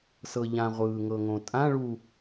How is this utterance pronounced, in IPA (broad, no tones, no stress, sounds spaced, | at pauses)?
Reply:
s ɤ ʎ ã ʁʷ ɯː ŋ ɤ ŋ õ tʼ ã ɭ u